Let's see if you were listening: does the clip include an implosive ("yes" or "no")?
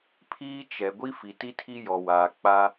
no